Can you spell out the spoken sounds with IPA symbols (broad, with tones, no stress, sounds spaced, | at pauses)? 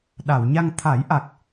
ɗ a˨˩˨ w ɲ a˧ ŋ t̪ʰ a˨˩˦ j ʔ a˨˩ k̚